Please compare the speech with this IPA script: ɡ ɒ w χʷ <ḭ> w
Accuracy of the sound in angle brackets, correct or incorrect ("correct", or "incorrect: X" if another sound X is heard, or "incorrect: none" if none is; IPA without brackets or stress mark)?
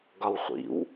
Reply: correct